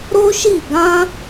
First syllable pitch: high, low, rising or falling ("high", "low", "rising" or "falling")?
high